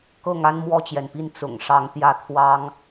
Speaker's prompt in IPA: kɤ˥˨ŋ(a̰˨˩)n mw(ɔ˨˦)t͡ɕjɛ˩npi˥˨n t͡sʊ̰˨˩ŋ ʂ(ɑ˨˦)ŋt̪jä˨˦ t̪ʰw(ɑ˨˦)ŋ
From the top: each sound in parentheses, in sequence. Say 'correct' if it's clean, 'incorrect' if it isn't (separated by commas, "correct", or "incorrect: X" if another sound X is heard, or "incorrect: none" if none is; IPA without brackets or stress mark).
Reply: incorrect: a˦, incorrect: ɔ˥˨, correct, correct